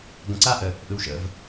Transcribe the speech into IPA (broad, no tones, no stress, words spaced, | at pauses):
ɡə̃ǀaʔə | ʔɯwʃə̰v